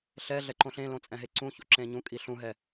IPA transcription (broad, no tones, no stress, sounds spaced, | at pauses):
ɬ ɛ ɮ ɛ ǃ õ ɬ ẽ l õ t͡sʼ ɛ̃ ɦ e ǀ ũ ç o̰ ǁ ẽ ɲ ũ kʼ i ɬ ũ ɦ ɛ